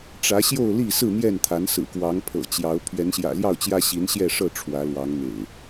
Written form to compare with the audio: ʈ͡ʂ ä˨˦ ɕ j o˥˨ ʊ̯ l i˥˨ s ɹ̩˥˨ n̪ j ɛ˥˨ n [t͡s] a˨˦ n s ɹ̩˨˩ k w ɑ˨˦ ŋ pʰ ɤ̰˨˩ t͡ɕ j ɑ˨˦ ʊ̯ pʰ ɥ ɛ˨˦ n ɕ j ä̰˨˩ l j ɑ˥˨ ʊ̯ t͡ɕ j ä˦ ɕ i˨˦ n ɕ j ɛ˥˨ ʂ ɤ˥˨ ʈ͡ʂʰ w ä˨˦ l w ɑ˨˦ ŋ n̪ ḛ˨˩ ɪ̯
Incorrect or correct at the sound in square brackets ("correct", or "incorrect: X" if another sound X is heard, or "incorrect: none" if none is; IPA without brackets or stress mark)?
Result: incorrect: t̪ʰ